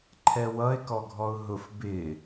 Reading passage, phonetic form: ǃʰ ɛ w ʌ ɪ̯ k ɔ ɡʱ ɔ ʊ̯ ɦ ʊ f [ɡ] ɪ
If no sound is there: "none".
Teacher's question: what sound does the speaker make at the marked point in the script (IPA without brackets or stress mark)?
b